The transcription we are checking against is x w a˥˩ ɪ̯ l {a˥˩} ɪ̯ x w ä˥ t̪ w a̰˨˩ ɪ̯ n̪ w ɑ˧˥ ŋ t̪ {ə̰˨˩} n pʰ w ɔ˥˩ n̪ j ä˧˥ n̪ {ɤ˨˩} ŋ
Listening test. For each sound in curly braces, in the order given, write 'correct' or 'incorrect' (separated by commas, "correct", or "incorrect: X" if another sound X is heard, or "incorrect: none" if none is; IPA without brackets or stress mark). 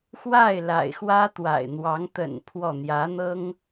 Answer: incorrect: a̰˨˩, correct, incorrect: ɤ˥